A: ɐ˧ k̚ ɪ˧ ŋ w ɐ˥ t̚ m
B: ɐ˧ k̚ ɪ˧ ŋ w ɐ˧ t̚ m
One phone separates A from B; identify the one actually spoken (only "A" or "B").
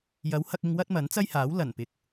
A